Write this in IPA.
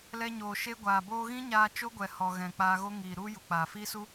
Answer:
lɛ˧ɲoː˨ ʃe˧ ɡʷaː˨boː˧ɣĩ˦ ɲaː˧ t͡ʃo˦ɡʷɛ˨ hɔ˨ɣɛ̃˨ k͡paː˧ɣo˦ ŋiː˨ ɾu˦ ju˨k͡paː˨fiː˦su˦

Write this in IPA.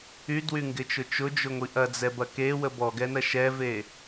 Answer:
ydwyŋɡɪt͡ʃʊ t͡ʃʊd͡ʒʊŋʷi ʔɐd͡zɛbɐ kewə bɔɡɛnɐ ʃɛve

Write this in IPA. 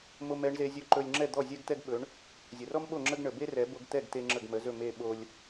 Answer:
mo˧m ɛ˩˥ɳze˧zʲɵ˥˩ ǃɵ˧lʲ ŋ͡ǁɛ˥˩d̪ɔ˥˩ zʲɛ˥ɡt̪ɛ˥ɡ ɓɵ˩˥ɳ | zʲə˩rɔ˥mɓo˥˩ ŋ͡ǁə˥ɡɳə˩ be˥rɛ˩˥ bo˧ɡt̪ɛ˥˩ɡt̪e˧ ŋ͡ǁə˥˩ɡmə˩˥zɵ˥˩ me˥˩ɓo˧lʲ

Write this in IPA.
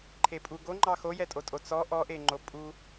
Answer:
ǃʰepʼu ɡoŋ͡ǃɑ xojɛtʼotʼo t͡sɔ ʔɔʔeŋ͡ǃo pʼu

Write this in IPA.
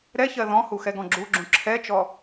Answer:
ɾɛçɜ ðɔ̃hu xɛɡɔ̃ɡ͡ǁuɡ͡ǁũ ǁʰɛt͡ʃɔ

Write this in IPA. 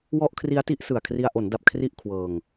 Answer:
wɔ˥˩ʔ kʰri˦˥a̯ti˦˥ʔsɯ˨˩a̯kʰri˧a̯ ʔo˩˦nda˨˩p̚ kʰri˥˩ʔ kʰwɤː˧ŋ

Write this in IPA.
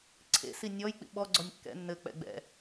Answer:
ǀʰḛsi nʲɔj k͡pḭɓɔɡ͡ǀɔnʲ kːɛ̰ nːɘk͡pɛ̰ ɡ͡bɛ̰

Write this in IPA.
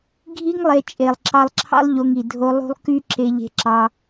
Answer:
ɡʱi˦ŋlˠe˧ t͡ʃʼe˨lˠǁɑ˧lˠǁʰɑ̰˦lˠ ʎo˧ŋi˨ dʱo˧ lˠṳ˦lˠ ky˦ ǁe˧ʎe̤˧ǁɑ˧

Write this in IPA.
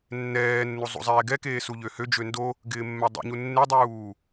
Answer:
nːɛːnːu zˤṵzˤɛːɡɛkeː suʎøhød͡ʒø ndo | ɡɪːmːɛdˤṵɲu nːedˤuː

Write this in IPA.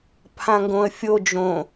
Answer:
pʰãŋɡõə̯fʲo d͡ʒõ

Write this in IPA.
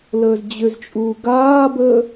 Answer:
ləːzd͡ʑʏzt͡ʃʼuː ɡaːbəː

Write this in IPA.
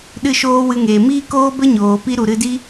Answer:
ɗɨ˦˨ʃoː˦wɨ˧ŋeː˨ miː˦koː˦bə˦ ɲoː˨pi˦ɾu˨ɾɨ˧ di˦

